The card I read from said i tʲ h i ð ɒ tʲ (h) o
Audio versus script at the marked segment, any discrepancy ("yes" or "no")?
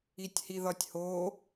no